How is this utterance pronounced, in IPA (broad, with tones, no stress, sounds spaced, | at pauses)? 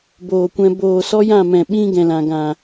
b oː˨ kʷ ɛ̃˧ b oː˨ s ɔ˦ j ã˦˨ m ɛ̃˨ ɓ ĩ˦ ɡ ɛ̃˨ l ã˨ ɡ ã˨